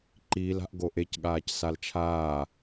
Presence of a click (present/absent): present